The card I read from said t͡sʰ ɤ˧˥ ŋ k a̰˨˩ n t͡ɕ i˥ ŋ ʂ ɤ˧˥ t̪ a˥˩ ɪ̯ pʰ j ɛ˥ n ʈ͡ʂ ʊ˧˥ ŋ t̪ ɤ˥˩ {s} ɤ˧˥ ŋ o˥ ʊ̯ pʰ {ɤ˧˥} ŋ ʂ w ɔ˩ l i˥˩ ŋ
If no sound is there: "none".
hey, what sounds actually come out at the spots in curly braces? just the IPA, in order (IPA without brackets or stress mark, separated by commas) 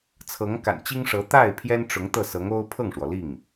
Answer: s, ɤ˥˩